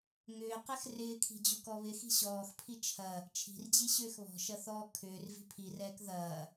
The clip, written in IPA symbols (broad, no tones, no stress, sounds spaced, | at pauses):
ŋ ʏː q ɛ x r ɪː kʰ i̤ d͡ʑ u k ɔ β ɪ x i̤ ɕ ɔː x pʰ i t͡ʃʰ ɐ | t͡ʃʰ i̤ r d͡ʑ i ɕ ʏː x β ɔ̤ ʃ ɐ θ ɔː kʰ ʏː r v i̤ pʰ i r ɛː k ð ɐː